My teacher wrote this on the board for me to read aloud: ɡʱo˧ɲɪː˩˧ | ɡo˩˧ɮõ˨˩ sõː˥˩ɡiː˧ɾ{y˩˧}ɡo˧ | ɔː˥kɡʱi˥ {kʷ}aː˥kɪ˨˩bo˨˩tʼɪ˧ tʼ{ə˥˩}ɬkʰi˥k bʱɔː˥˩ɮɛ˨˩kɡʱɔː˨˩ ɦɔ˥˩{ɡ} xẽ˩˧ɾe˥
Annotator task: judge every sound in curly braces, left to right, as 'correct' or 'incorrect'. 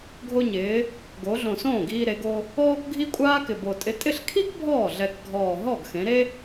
incorrect, incorrect, incorrect, correct

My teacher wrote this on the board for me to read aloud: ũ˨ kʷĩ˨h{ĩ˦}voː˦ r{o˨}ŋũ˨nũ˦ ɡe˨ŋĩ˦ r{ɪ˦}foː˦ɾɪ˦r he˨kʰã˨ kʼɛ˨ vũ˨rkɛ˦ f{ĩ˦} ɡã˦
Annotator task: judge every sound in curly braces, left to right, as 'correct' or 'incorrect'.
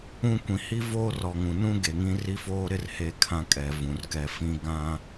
incorrect, incorrect, incorrect, correct

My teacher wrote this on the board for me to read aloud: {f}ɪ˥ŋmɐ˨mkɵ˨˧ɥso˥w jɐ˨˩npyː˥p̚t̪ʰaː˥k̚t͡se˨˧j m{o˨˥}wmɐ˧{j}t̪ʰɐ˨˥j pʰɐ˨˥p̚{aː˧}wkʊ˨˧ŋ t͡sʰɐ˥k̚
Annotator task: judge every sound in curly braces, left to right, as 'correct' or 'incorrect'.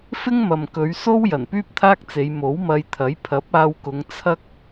correct, correct, correct, correct

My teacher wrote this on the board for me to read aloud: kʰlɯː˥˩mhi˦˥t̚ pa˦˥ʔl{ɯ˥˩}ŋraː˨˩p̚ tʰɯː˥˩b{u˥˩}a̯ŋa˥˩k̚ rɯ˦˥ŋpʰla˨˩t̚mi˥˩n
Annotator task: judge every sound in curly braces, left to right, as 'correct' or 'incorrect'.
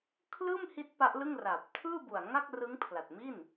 correct, incorrect

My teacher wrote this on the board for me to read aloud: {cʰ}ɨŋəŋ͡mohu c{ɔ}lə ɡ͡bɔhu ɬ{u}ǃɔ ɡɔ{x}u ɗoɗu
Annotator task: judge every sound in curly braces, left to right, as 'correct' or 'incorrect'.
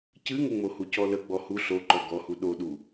incorrect, correct, incorrect, incorrect

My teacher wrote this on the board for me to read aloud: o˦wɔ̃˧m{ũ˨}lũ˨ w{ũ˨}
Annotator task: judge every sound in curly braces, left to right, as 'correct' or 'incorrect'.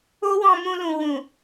incorrect, correct

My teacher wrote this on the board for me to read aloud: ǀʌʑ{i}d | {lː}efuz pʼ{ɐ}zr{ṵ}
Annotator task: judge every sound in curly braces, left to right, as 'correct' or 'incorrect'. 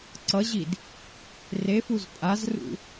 correct, incorrect, incorrect, correct

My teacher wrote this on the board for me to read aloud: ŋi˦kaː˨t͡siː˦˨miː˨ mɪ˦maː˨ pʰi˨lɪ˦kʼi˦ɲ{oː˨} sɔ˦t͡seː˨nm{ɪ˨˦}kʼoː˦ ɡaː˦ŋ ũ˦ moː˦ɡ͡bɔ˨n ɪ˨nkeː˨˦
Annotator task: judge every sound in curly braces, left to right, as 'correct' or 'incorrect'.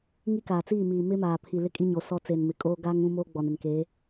incorrect, incorrect

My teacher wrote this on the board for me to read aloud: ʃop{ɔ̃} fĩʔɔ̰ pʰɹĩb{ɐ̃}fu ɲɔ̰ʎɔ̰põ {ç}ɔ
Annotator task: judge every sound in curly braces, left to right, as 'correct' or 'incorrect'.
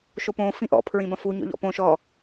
incorrect, correct, incorrect

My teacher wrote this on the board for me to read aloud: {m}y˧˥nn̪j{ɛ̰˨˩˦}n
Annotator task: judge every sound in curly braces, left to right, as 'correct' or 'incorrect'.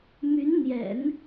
correct, correct

